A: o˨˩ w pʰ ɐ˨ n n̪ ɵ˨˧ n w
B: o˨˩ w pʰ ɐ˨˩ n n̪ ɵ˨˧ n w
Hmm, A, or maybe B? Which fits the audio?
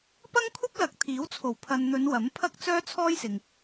A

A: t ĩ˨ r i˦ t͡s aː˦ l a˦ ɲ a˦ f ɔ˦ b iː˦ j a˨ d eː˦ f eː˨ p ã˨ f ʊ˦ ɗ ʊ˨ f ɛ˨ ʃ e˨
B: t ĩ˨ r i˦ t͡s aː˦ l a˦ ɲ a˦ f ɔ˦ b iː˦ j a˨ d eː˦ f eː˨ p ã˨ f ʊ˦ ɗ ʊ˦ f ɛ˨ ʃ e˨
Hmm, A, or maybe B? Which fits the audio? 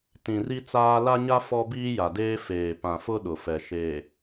A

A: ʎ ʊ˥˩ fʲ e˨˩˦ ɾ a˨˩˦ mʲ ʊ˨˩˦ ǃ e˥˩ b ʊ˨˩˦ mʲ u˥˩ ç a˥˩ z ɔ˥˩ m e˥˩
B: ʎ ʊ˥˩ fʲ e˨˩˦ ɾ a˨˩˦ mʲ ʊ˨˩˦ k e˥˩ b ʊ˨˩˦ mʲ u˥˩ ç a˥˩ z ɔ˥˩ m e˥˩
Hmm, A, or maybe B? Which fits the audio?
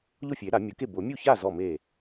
B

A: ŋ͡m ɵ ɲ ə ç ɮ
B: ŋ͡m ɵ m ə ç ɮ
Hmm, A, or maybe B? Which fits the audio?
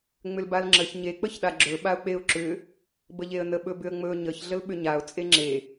A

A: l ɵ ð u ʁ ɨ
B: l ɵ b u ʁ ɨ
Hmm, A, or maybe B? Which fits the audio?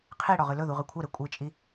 A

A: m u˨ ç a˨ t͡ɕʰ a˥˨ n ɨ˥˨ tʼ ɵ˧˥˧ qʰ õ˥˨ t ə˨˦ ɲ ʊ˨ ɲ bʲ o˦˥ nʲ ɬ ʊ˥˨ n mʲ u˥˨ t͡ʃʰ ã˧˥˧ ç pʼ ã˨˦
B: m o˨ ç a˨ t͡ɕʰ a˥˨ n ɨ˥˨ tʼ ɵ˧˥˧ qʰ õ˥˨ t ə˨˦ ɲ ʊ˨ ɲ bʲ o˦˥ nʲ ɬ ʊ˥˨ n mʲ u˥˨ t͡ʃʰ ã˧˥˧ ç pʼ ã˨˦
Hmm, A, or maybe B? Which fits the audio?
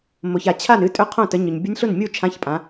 B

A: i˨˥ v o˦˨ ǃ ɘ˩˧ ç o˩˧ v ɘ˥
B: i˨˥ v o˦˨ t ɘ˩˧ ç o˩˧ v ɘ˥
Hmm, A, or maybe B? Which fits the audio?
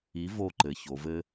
A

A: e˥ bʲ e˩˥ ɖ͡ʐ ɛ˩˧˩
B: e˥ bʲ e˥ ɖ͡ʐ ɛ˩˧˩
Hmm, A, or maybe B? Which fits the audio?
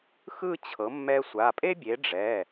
A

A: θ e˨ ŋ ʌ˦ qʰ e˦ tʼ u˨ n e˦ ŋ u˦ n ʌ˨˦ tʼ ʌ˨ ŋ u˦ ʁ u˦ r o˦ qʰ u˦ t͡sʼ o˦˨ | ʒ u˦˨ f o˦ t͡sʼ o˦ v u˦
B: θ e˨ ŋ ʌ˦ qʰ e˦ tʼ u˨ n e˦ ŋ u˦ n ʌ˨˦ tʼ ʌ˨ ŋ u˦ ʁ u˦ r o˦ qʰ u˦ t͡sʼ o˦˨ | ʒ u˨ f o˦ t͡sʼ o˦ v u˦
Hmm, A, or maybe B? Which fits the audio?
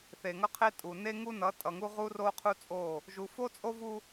B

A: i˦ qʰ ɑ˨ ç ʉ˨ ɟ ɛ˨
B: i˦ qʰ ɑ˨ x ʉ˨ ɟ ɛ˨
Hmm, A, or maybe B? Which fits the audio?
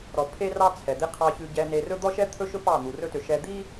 A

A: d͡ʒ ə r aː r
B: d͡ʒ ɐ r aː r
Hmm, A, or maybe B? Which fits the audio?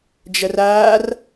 B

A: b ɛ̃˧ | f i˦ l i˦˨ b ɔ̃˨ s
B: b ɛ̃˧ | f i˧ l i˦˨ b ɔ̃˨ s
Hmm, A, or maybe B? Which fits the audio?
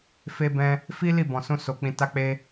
A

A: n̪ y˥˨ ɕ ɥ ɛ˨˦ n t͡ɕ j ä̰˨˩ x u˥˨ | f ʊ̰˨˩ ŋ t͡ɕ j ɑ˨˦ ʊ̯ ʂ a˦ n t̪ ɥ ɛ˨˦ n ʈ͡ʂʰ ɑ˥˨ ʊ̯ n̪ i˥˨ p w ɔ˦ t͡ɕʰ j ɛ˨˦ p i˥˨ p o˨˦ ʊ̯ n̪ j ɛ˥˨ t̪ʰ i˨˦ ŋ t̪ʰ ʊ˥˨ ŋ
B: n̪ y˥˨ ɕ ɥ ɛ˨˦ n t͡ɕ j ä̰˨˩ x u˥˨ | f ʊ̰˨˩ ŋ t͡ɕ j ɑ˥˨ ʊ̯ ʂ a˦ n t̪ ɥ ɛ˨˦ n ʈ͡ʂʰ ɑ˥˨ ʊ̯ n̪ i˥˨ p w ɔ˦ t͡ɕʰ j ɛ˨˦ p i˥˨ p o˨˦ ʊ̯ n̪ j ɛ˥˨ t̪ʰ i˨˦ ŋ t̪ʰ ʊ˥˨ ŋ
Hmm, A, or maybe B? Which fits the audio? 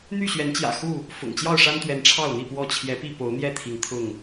B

